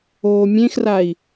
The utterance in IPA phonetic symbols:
oːmʲẽxrai̯

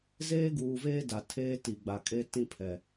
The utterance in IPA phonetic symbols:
zeː˦ɡuː˨veː˦ da˨ tʰeː˦ti˨ɡ͡ba˨kʼe˦ tĩ˦pʰɛ˨

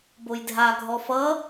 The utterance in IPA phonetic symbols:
bojdʱaɡʱɔ fʌ

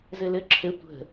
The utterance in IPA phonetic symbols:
zɘlɘ ǁʰɘ tʷə̤

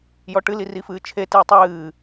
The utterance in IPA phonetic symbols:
jɔʈɨli rifɨːt͡ʃʰetɨː tˤɨː

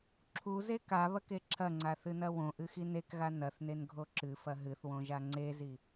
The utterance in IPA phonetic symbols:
ǁʰuze kaβɐke ǁʰɐŋ͡ǀaθɨnɐ wõʔɨxin ekɣa nɐθnenɡʱo ǁɨfɐ ɦɨθwõʒa ŋ͡ǀezi

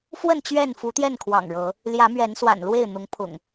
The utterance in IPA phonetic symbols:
fwə˥˨n t͡ɕɥɛ˥˨nfu˨˦t̪jɛ˥˨nkʰwɑ̰˨˩ŋ ɻɤ˨˦ | ljä˨˦mɥɛ˨˦n swa̰˨˩nlwe˥˨ɪ̯ n̪ʊ˨˦ŋpʰʊ̰˨˩ŋ

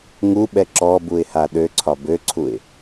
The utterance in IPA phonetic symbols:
ŋuɓɛ ǁɔbuɪ̯ha ɗøǀʰɒ bøǀʰuɪ̯

